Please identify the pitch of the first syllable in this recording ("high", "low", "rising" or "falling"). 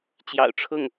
low